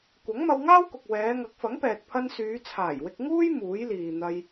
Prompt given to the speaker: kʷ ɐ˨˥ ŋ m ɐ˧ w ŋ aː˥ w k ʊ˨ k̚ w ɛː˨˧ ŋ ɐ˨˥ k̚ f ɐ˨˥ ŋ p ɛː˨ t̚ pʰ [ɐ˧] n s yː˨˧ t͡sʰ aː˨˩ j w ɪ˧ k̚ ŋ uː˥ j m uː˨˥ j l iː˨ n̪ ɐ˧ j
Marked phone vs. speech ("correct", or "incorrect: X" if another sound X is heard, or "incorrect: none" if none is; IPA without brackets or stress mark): correct